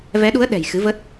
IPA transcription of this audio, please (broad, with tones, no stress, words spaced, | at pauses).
vɛ˨˦ɗu˨˦ə̯ ɗɛ̤˨˩j xɨ˨˦və˦˥t̚